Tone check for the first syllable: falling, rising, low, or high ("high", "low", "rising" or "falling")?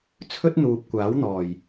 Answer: high